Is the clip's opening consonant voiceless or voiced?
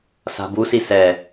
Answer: voiceless